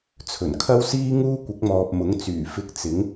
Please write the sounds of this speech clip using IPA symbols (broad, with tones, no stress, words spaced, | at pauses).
t͡sʰɵ˨˩nkʰɐ˥wsiː˥ ŋuː˥kʷɪ˨˥k̚mɔː˨p̚ mʊ˨˥ŋt͡syː˨˩ fɪ˧k̚t͡sɪ˨˥ŋ